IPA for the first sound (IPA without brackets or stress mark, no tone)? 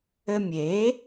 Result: ɘ